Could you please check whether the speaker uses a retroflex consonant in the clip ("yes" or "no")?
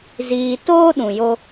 no